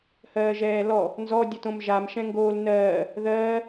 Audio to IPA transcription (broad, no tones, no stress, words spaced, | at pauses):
hɜːʒɛːlɔ | nzɔ dʲətõmʒam ʃɛ̃ŋɡoːl nɜː | ðɜː